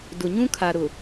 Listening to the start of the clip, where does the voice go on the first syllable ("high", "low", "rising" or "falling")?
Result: low